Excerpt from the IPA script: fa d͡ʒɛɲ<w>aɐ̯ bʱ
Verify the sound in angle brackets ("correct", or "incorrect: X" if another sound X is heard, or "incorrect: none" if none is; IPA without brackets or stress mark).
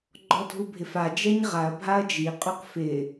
incorrect: ʁ